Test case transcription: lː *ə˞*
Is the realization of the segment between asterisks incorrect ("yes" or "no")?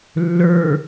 no